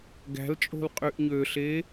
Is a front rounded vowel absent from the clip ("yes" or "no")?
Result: no